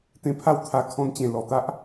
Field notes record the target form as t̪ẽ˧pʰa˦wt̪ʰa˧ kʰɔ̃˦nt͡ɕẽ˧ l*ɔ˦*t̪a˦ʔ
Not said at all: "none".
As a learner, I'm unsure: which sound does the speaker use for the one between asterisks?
ɔ˨˩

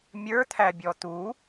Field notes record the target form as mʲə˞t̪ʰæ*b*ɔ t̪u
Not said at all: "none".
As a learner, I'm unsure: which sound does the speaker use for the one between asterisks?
bʲ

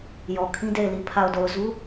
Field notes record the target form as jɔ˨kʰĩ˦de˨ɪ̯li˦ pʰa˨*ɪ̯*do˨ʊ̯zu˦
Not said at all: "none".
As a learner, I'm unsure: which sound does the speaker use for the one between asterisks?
ʊ̯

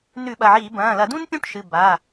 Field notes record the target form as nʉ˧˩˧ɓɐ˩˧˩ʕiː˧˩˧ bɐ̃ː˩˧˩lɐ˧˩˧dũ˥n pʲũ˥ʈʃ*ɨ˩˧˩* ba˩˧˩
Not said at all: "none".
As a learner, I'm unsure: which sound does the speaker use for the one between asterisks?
ɨ˩˧˩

